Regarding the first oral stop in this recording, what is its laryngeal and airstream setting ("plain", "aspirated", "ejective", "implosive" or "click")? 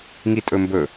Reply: ejective